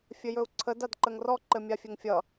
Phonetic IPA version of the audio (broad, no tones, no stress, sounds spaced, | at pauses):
fʲ ɘ j ɵ u̯ ǀʰ ə d a d ǃ ə ŋ r ɔ ǃ ɘ mʲ a fʲ ɘ ŋ fʲ ʌ